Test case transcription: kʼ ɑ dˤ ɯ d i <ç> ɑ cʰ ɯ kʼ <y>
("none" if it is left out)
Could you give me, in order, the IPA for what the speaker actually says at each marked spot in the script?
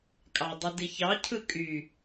ç, y

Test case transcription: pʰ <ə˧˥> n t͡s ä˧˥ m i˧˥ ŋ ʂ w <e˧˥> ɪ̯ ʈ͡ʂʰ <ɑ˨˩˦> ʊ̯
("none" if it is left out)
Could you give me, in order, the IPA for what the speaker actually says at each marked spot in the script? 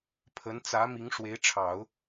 ə˧˥, e˧˥, ɑ˨˩˦

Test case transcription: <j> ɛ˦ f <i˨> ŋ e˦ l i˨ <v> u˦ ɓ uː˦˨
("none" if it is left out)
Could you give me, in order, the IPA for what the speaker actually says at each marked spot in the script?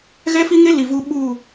ɣ, i˦, v

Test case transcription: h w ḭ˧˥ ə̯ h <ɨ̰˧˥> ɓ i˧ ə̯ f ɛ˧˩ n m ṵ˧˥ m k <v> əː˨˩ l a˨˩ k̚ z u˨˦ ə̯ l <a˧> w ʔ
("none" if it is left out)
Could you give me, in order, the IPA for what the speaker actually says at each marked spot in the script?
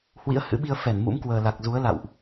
ɨ̰˧˥, w, a̰˧˨

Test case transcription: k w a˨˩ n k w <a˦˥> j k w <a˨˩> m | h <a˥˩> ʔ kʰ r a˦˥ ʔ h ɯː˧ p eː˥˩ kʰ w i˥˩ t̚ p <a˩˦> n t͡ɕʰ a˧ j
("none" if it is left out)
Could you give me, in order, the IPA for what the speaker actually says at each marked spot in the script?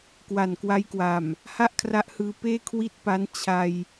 a˦˥, a˨˩, a˥˩, a˦˥

